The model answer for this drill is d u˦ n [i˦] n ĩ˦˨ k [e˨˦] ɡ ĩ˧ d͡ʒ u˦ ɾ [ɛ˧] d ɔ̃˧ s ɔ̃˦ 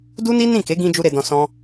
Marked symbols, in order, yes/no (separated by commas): yes, yes, no